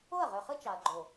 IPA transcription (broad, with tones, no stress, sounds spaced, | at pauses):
o˦˨ ɐ̯ ʁ ø˨ χ ɯ˦ t͡ʃ ɑ˨ ɐ̯ ɡ͡ǃ o˨